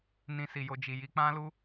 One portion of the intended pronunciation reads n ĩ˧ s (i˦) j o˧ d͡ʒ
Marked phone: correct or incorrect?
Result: incorrect: i˨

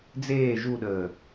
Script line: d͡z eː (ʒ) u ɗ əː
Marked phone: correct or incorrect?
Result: correct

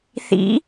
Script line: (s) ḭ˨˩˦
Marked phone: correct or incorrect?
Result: incorrect: θ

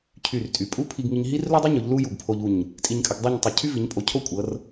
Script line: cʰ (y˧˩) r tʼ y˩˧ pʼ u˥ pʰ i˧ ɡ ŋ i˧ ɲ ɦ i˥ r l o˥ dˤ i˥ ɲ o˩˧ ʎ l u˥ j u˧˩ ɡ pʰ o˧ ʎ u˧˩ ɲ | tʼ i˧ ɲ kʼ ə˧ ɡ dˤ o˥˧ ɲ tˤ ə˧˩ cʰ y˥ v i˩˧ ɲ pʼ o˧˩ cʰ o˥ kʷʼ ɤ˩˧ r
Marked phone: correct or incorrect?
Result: correct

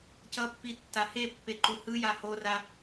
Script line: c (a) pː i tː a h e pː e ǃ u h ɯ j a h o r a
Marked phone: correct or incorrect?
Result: incorrect: ʌ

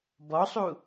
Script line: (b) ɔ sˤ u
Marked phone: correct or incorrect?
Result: correct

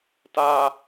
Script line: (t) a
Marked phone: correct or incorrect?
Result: correct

